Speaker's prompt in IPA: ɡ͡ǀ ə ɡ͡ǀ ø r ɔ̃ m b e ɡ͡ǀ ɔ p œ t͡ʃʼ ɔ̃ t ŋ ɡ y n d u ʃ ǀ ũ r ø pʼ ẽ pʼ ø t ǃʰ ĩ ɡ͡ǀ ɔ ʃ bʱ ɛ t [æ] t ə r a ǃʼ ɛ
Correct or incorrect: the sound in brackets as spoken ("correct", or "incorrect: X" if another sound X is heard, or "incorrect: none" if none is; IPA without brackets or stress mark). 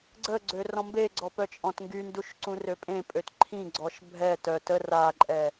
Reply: incorrect: œ